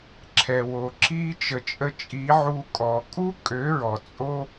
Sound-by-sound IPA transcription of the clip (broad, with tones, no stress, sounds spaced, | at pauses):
ǁʰ ɛ˨ w o˨ ǁ i˦ t͡ʃ ə˨ t͡ʃʼ ə˧ t͡ʃʼ i˨˦ ʕ u˦ kʼ ɔ˧ kʼ u˦ kʼ ø˨˦ ɹ ɔ˨ t͡sʼ o˦